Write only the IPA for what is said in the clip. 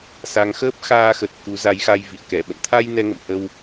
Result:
s a˨˦ ŋ x əː˦˥ p̚ x aː˧ x ə˨˩ t̚ k u˨˦ z a˨˦ j x a˧ j v ḭ˧˨ ə̯ k ɛ˧˩ ɓ ə̰˧˨ n t̪ʰ a˧ j n ɛ˧ ŋ ə̰˧˨ m h ə˧ w

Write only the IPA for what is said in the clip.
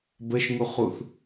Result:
b ə ʃ ŋ u χ u θ

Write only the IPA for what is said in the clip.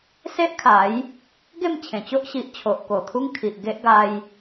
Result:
s e˦ ʔ kʰ a˨˦ j | ɡ e˥˧ m t͡ɕʰ ẽ˨˩ t͡ɕ o˦ ʔ ɕ i˨ ʔ t͡ɕʰ o˨ ʔ k o˨˩ t̪ʰ u˦ ŋ kʰ i˨ ʔ ɡ e˦ ʔ ɡ a˧ j

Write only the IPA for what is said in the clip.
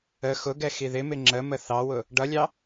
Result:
ə x ʊ ɡ ɛ x i ð ɪ m ɪ ŋ͡ǁ ə m ə θ ɑ w ʊ | ɖ ʌ lʲ ɑ

